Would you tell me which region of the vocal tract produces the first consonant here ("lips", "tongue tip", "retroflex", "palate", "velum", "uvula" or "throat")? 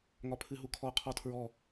velum